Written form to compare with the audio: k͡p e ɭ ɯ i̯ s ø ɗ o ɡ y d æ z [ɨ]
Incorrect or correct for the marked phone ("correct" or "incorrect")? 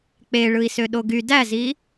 incorrect